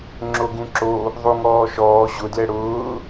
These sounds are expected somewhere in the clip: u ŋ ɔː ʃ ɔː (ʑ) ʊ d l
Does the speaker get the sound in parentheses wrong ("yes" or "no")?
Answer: no